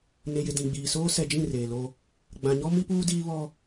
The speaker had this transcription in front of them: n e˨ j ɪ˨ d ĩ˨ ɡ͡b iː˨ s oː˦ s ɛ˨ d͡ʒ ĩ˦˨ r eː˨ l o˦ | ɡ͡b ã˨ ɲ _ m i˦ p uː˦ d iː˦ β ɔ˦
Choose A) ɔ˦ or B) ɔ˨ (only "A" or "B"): A